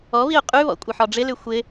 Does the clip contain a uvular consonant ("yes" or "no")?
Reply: yes